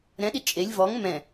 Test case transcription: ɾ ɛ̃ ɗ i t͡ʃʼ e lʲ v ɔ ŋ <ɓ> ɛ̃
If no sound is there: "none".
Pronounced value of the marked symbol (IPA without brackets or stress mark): m